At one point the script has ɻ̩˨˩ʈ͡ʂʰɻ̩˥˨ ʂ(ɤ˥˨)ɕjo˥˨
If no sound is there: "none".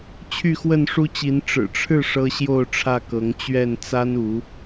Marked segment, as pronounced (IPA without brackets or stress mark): ɤ˦